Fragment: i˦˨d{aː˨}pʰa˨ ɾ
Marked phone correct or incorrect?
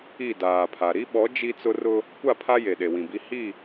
correct